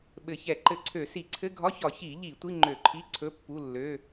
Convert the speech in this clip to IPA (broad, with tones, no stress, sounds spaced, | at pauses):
ɓ ɘ˧˩˧ ç ɛ˧˩˧ ǃ ɘ˧˩˧ ǀʰ ø˧˩˧ s i˧˩˧ ǀʰ ɘ˧˥˧ ɡʱ ɒ˧˥˧ ç ɒ˧˩˧ ç i˧˩˧ ʎ i˧˩˧ tʷ i˧˥˧ ŋ͡ǃ ø˧˩˧ ǃʰ i˧˥˧ ǀʰ ɵ˧˥˧ pː u˧˥˧ lː ø˧˥˧